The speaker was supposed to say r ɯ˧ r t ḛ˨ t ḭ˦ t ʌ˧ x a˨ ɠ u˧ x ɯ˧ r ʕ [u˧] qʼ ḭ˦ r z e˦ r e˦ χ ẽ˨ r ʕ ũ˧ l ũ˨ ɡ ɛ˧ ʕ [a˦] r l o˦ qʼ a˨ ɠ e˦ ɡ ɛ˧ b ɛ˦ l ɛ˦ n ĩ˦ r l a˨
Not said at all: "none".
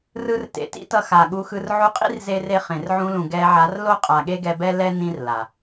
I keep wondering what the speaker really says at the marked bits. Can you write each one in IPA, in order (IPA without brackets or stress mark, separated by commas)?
u˧, a˨˦